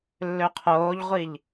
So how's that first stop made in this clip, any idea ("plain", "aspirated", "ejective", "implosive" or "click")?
aspirated